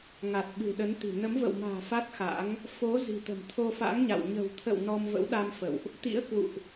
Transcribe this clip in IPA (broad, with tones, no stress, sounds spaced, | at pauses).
ŋ a˨˩ t̚ ɓ ɨ̤˨˩ ɗ ə˨˦ n t̪ i̤˨˩ n ə˨˦ m v ə̰˧˨ w m a̤ː˨˩ f a˦˥ t̚ x a̰˧˥ ŋ | f o˨˦ z i̤˨˩ t̪ ə̤˨˩ m t̪ʰ o˧ f a̰˧˥ ŋ ɲ a̰˧˨ w ɲ ə̤˨˩ w t̪ʰ ə̰˧˨ w n ɔ˧ m v ə̰˧˥ w ɗ a˧ m f ə̰˧˨ w ʔ | t̪ ḭ˧˥ ə̯ k w ṵ˧˨ ʔ